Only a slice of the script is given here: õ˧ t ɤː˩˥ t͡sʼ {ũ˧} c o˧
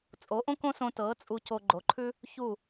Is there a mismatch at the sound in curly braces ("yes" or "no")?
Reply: yes